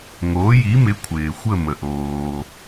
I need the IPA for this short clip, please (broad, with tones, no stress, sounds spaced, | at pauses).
ŋ oː˨˥ j i˨˥ m ɪ˨˥ kʷʰ ɪː˨ xʷ ə˥˧ m ə˨ ʔ oː˨